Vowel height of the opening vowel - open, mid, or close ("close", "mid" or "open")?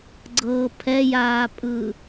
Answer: mid